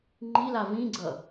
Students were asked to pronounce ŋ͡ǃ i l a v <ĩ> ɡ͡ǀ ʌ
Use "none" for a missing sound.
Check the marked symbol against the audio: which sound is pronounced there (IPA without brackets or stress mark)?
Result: ĩ